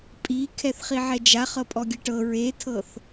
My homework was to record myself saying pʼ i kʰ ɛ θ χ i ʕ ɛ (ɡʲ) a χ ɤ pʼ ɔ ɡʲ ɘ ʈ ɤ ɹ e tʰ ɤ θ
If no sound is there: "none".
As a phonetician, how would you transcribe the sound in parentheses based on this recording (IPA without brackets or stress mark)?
d͡ʒ